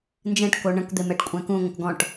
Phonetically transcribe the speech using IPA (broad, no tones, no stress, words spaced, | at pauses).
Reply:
nd͡ʒɛ̃ʈko ɳə̃kd̪em ɛʈkʷʼɛ̃kũŋʷə̃k ɡɔ̃ʈ